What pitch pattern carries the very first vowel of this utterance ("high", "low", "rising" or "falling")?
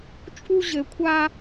high